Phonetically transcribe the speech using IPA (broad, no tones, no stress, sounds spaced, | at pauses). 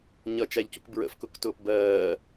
ɲ ʌ t͡ʃ æ ʎ c u k b ɹ ə̰ f k ʊ k t ʊː p b ɜː